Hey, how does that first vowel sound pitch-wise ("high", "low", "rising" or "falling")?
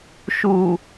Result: low